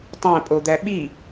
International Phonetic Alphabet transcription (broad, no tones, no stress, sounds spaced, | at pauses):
tˤ æ̃ pʼ o d̪ æ ɓ i